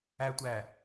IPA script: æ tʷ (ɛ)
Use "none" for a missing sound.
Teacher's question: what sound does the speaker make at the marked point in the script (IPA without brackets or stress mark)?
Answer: æ